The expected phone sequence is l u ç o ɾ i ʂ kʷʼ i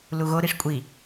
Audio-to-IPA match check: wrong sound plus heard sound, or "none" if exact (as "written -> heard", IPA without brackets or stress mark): ç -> ɣ